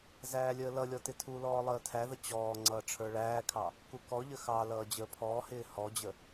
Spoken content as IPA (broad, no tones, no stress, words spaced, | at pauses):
zæːlʲəːlʌlʲɔ tɪtʰulɔː lˠəːtʰæðə t͡ɕɔː ŋ͡ǀʌːʈ͡ʂʰə˞ɭæːkʰɑ | kukɔʎə xɑ lʌːd͡ʑəːpʰɔːhɪː hɔd͡ʑə